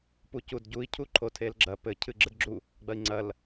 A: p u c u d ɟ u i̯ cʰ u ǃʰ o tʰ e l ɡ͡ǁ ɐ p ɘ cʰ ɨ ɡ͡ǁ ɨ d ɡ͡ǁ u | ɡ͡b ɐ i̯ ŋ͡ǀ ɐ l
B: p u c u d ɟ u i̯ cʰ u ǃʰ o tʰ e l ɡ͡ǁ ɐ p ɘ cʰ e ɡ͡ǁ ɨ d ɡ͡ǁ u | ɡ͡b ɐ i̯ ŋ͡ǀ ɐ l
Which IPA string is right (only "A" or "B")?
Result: A